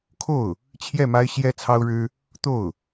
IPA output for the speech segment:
kʰ o˥˩ ʊ̯ | t͡ɕʰ j ɛ˥˩ m a˥ ɪ̯ ɕ j ɛ˥ t͡sʰ ɑ˥ ʊ̯ ɻ ɻ̩˥ | t̪ o˥˩ ʊ̯

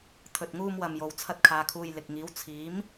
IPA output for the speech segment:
t̪ʰ ɵ˧ t̚ ŋ uː˥ m w ɐ˧ m j o˨˧ w t͡sʰ ɐ˥ t̚ kʰ aː˧ kʰ uː˧ j l ɪ˨ k̚ ŋ iː˨˥ w t͡sʰ iː˨˥ m

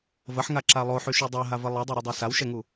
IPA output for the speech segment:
v ə ħ ŋ a ǁ a lˠ o ħ y ʃ y dˤ a ɦ a v ə lˠ i dˤ u ɾ u dˤ a s a w ʃ ɛ ŋ u

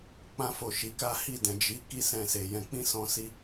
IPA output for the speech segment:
k͡p ã˧ f o˨ ʃ i˨˦ k a˦ h i˦˨ d ɛ̃˨ d͡ʒ i˨˦ k i˦˨ s ɛ̃˧ s e˨ j ɛ̃˧ k͡p ĩ˦ s ɔ̃˧ s i˧

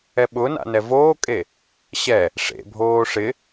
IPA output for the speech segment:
ɛ ɓ ʊ n a̰ n ɛ v oː kʼ e | ɕ ɛ | ʂ ḛ bʱ oː ʂ ɪ

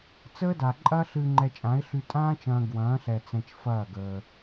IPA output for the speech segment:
t͡s əː˦ d a˨ ǃʼ ɐː˦ ɬ ɨː˧ ŋ͡ǃ ɛ˧ t͡ʃʼ ã˨˦ ɪ̯ ɬ y˧ tʼ ãː˦ t͡ʃ ɐ̃ː˧ ɡ w ɐ̃ː˨˦ ɬ ɛ˨ t͡s ɛ̃˧ t͡ʃ f ɐː˦˨ ɡ əː˧

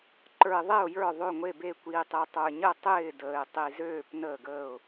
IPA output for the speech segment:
ǃ ə˞˨ ɪ̯ ðˤ e˦˨ ʊ̯ j ə˞˦˨ ðˤ ø˦˨ ŋʷ e˦˨ b e˦˨ kʷ iː˨ tˤ e˨ tˤ ə˞˨ ɲ ə˦˨ tˤ ɪː˦˨ d əː˨ ɪ̯ tˤ i˨ z øː˦˨ p n əː˦˨ ɡ əː˦˨ ʊ̯

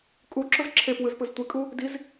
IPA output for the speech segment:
kʼ u ǁ ʊ z ǁʰ e p w ɯ z p ɯ z tʷ i kʼ u | d i z

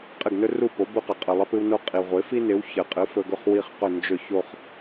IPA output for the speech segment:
qʼ ɪ˥˩ ɡ n ɵ˥ r u˥˩ p o˩˥ b u˧ q ə˩ qʼ ɨ˩ lˠ ɪ˧ p ɨ˧ w n o˧ qʼ i˩ ʁʷ ɪ˩˥ f i˥ n ɪ˩˥ w ç ɘ˩ qʼ ɨ˩˥ f ɵ˧ ɡ ɵ˥˩ χ w i˥˩ χ q ɵ˥˩ n d͡ʒ ɵ˥˩ ç o˥˩ χ

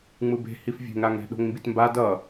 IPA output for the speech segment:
ŋ͡m ɯ b e̤ h i f vʲ e̤ ŋ ɾ a ŋ ɾ ɛ̤ ɗ o̤ ŋ m b i t m b a d ʌ

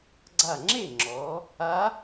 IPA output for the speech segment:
ɡ͡ǀ a˧˩ ŋ͡ǁ e˥˩ ŋ͡ǁ ɔ˩˧ | a˧˥

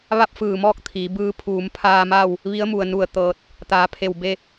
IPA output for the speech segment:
ʋ a˥˨ p̚ f ɯː˧˩ m ɔː˥˨ k̚ t̪ʰ iː˩˧ b ɯː˧˥ pʰ uː˩˧ m pʰ aː˧ m aː˥˨ w | ʋ i˧˥ ə̯ m u˩ ə̯ n u˧˩ ə̯ t̪ ɤː˧˩ t̚ | t̪ aː˩˧ pʰ e˧˩ w b e˥˨

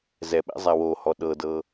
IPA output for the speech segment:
z ɛ ɓ ɛ̰ zˤ a w o h ɔ ɗ ɤ d ɤ

